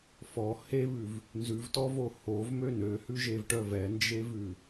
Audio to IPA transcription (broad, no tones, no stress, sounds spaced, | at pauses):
f ɔ h e β ʉ v | n z ʉ v t ɔ v o h o v m ø n ø h ʉ ʒ e v ʈ œ v ɛ n d͡ʒ e v ʉ